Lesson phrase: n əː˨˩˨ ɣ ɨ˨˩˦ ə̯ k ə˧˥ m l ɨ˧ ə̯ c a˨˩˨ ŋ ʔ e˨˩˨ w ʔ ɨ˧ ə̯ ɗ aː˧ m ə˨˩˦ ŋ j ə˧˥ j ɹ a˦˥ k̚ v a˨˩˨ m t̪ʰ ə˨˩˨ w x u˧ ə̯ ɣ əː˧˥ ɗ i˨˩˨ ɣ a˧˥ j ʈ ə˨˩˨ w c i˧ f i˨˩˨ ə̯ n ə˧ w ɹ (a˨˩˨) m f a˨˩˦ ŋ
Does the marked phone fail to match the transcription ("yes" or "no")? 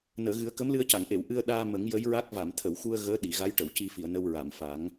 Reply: no